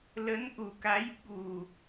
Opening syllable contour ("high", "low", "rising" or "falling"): rising